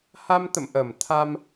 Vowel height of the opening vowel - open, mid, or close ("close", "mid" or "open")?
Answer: open